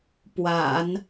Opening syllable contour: low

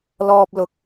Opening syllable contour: high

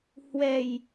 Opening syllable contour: low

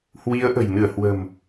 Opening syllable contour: rising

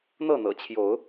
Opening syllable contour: falling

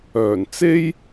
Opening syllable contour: low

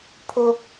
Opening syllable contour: high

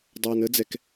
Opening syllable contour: low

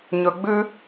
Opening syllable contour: low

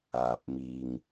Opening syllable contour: low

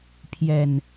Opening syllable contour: low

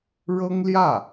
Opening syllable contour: high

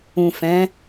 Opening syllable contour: low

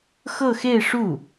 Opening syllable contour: falling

